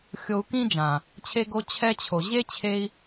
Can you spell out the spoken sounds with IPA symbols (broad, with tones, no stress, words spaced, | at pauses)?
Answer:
xʲo˧u̯kĩ˦d͡ʒã˨ | t͡ɕʰe˧ɡo˧ t͡ɕʰɛ˧t͡ɕʰo˨ ʑe˦t͡ɕʰe˧i̯